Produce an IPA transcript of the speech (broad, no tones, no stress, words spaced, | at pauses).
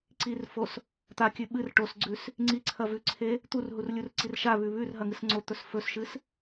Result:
ǀirfos | t̪akʲʉ ɓɨr ʈosɡ͡ǀʉs | ŋ͡ǀiǀʰɐ vʉǀʰe | t̪urɦurlʲurǀir ʃaβʉ βʉrɦɐŋɨs ŋ͡ǀot̪ɵs fɵsʃɨs